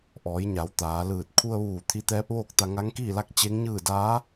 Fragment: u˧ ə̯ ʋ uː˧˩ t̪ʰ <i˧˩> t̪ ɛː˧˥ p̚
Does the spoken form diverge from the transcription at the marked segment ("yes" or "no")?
yes